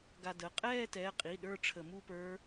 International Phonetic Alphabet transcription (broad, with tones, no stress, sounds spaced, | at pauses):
ɡ a˧ d ə˩˧˩ qʼ ɛː˥˧ t ɛ˩˧˩ qʼ i˩˧˩ ɗ ə˞˥˧ ʈ͡ʂʰ ə˧˩˧ m u˥˧ p ə˞˦˥